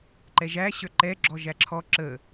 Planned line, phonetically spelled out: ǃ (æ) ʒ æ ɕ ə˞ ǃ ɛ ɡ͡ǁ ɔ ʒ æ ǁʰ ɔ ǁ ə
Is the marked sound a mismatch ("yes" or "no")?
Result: yes